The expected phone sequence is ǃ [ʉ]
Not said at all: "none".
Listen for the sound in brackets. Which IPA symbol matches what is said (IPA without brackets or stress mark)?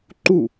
u